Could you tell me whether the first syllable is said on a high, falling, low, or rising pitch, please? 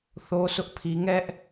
high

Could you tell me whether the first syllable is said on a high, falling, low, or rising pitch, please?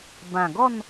low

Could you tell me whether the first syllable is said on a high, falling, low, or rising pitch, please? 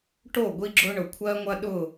falling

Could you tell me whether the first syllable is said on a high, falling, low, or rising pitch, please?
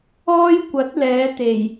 high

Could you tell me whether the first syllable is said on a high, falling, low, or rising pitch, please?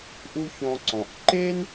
high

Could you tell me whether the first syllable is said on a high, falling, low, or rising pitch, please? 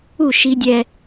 falling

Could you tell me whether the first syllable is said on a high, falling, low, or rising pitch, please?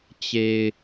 low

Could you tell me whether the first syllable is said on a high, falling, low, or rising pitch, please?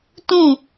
falling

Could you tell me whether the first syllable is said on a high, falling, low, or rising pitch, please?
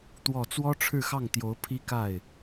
low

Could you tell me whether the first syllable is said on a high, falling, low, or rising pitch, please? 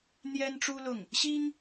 high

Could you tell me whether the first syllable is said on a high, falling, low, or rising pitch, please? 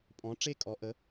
rising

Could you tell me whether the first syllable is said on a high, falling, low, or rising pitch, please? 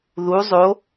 rising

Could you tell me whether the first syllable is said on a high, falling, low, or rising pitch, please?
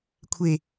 low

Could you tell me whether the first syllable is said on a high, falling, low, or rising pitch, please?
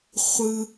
high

